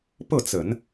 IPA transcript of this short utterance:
p ɤ˥˩ t͡s ə˨˩˦ n

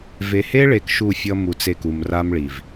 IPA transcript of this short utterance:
v e˨ h e˦ ɭ e˨ k ʃ u˦˨ fʲ ʌ˦ m u˨ t͡s e˦˨ k u˨ m r a˦ m ɭ i˨ v

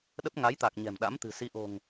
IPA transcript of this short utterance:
ɗ ə˦˥ p̚ ŋ a˨˦ j t̪ a˨˩ k̚ ɲ ɛ̤˨˩ m ɗ a̰˧˥ m t̪ ɨ̤˨˩ s i˨˦ ʔ o̤˨˩ ŋ

